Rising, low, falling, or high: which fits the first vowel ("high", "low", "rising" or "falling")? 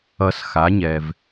low